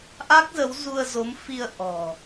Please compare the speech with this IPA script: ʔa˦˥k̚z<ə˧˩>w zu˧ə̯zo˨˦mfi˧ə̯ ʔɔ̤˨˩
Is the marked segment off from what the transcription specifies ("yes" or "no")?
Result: yes